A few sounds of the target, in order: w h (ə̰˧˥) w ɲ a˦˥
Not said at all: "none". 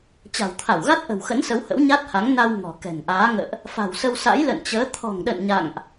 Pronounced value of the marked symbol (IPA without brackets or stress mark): ə̰˧˥